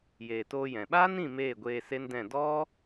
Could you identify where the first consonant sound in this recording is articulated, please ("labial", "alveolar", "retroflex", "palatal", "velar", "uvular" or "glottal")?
palatal